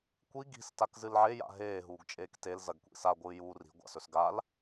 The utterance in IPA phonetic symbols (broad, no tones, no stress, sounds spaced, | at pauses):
kʷ i ɡ i̤ s t a k z ɨ l ʕ e j a̰ ɦ eː ɦ uː ɡ t͡ʃʼ eː k t e l z ɐ ɡ kʷ ḭ s a ɡʷ ɨː j uː r i̤ ɡʷ a̰ s ɵ s ɡ a l